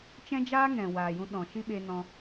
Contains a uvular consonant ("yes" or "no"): no